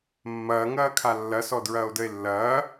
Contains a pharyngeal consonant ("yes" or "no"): no